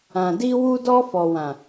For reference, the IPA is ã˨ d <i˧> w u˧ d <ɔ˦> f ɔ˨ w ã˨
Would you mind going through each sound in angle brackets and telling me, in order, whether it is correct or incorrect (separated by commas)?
correct, incorrect